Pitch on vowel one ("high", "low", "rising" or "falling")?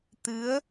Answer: rising